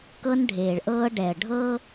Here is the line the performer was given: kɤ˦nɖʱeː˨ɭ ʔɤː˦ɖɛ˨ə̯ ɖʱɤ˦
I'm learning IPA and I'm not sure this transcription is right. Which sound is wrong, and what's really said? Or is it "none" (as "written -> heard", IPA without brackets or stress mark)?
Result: none